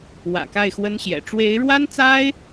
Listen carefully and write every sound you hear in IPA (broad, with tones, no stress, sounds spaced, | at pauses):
w ä̰˨˩ k a˥˩ ɪ̯ x w ə˥ n ɕ j ɛ̰˨˩ ʈ͡ʂ w e˧˥ ɪ̯ ɻ w a˥ n t͡s a˥ ɪ̯